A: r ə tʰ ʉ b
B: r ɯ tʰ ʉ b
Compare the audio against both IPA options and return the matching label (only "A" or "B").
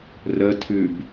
A